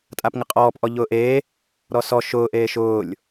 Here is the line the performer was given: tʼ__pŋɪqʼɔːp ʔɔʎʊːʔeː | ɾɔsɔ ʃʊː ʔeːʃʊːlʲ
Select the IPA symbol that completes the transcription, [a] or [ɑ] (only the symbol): a